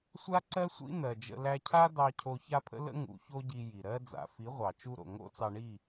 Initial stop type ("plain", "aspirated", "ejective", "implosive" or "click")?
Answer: click